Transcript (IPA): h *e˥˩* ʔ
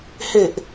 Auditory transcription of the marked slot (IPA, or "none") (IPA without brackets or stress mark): e˨˩